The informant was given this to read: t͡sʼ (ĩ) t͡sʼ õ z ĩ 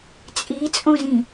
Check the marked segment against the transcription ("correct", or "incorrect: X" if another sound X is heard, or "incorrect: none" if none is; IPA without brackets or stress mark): incorrect: i